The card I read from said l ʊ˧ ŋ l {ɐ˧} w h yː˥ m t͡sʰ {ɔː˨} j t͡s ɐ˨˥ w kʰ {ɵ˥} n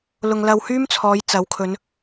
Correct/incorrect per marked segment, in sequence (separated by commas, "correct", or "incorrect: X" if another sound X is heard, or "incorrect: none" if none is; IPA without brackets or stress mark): correct, incorrect: ɔː˨˧, incorrect: ɵ˨˧